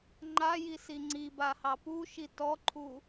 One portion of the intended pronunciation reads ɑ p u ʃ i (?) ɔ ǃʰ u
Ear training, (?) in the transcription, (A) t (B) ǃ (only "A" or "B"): A